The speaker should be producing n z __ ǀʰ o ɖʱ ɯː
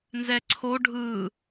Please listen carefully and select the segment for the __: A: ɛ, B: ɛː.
A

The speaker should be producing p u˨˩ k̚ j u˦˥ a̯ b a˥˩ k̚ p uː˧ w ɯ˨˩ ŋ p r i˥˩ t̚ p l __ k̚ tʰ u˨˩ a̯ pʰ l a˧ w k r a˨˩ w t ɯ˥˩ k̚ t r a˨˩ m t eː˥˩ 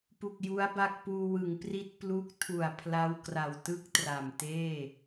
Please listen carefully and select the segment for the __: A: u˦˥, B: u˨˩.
A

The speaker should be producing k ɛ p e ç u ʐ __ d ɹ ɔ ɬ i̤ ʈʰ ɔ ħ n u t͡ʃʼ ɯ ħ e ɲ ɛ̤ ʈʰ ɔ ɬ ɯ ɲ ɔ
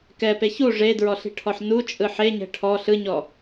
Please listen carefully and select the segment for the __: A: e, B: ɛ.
A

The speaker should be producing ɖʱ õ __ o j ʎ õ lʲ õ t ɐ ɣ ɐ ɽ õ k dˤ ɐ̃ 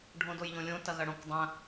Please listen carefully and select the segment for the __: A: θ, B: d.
B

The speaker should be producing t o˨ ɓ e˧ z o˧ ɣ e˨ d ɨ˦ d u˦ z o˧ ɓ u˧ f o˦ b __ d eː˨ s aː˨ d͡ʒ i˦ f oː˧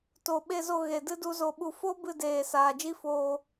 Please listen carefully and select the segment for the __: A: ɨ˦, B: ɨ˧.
B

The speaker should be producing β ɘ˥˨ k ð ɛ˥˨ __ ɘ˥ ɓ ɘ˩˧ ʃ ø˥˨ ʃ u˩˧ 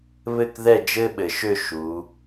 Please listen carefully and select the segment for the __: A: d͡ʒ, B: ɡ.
A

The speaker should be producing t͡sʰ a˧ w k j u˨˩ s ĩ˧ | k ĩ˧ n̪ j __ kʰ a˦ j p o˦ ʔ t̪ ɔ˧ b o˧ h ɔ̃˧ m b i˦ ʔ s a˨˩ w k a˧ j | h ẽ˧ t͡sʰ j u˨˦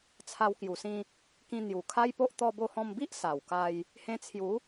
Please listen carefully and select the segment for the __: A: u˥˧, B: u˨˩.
B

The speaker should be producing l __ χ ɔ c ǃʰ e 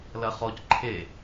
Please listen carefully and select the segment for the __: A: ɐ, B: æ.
A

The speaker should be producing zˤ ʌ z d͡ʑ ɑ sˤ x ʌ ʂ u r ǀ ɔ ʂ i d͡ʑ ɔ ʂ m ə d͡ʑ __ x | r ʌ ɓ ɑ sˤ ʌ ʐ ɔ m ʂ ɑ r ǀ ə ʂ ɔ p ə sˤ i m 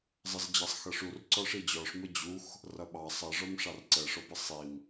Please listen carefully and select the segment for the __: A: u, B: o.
A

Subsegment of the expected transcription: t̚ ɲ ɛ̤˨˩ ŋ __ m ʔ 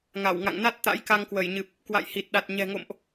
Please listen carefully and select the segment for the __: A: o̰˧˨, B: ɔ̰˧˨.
A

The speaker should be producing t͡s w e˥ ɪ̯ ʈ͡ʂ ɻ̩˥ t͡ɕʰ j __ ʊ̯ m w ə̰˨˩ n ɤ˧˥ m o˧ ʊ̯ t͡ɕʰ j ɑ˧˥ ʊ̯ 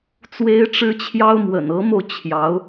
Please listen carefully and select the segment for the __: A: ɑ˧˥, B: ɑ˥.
B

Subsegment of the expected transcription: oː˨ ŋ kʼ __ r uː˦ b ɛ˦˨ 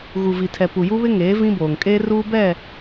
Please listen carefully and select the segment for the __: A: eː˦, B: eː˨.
A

